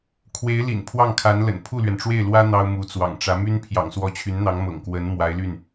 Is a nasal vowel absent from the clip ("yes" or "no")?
yes